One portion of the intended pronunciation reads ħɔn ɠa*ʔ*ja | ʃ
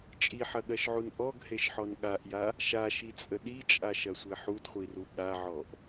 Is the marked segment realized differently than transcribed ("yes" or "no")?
no